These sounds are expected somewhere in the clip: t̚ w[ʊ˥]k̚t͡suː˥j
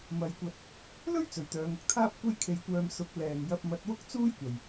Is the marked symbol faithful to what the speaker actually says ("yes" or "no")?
yes